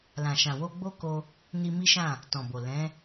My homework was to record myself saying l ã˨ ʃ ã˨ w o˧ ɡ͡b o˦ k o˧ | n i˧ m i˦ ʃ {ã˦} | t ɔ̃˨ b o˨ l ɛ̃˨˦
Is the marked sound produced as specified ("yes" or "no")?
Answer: no